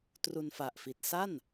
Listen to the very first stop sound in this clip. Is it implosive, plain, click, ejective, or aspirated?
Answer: plain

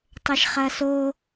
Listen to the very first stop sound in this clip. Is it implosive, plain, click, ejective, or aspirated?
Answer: plain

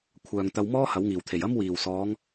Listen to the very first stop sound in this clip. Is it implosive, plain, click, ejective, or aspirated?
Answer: aspirated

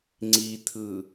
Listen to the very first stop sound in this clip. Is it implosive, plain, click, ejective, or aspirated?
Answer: click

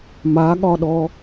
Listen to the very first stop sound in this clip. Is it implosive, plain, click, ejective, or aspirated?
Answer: implosive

